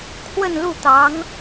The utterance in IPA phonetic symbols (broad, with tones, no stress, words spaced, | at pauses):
kʰwə˥˧nlu˥˩t̪ɑ˧˥ŋ